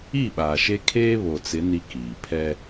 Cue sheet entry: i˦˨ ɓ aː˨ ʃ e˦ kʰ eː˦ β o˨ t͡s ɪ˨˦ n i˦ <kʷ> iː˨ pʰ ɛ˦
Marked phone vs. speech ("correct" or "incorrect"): incorrect